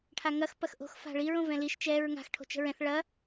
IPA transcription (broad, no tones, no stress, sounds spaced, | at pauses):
ʈʰ a ŋ ɐ x p ɐ x ʔ o̤ x f a̤ ɭ i ɹ õ v ɛ̃ l i ʃ t͡ʃ ɛ ɹ ŋ a̤ x ʈʰ o̤ t͡ʃ ə̤ ɹ ɛ̃ θ ɭ ɐ